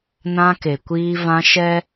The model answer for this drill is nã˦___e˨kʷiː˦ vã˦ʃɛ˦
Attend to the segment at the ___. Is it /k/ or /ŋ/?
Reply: k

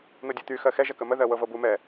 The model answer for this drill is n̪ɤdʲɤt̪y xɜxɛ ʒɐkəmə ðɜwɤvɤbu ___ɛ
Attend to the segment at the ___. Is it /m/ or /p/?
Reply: m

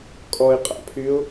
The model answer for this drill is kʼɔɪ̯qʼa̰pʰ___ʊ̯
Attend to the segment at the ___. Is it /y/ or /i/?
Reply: y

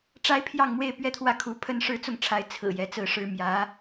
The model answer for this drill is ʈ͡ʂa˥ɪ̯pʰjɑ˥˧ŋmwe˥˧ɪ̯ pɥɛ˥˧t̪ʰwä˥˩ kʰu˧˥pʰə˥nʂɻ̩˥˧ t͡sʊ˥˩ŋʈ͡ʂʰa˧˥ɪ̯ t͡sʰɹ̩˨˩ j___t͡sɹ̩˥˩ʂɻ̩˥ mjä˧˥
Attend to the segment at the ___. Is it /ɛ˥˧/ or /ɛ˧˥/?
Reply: ɛ˧˥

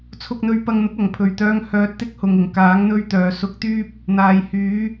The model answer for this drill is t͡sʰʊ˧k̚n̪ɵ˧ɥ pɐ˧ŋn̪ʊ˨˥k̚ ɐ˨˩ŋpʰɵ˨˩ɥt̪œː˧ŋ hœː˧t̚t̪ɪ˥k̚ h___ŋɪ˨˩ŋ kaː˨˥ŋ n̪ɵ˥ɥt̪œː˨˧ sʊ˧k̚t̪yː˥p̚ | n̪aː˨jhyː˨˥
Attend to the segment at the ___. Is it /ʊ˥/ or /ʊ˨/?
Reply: ʊ˨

